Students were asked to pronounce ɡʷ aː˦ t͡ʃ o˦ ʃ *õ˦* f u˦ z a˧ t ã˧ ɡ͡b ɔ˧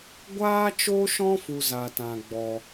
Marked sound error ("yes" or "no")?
yes